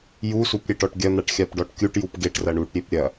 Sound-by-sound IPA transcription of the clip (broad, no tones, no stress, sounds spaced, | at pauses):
j u s u p ɾʲ e ʈ ɔ ʈ ɡʲ ɐ n̪ a ʈ xʲ a p ɖ ɔ ʈ kʲ u ʈ j u p ɡ e ʈ r ɐ ɳ u ʈ ɾʲ e p ɾʲ ɐ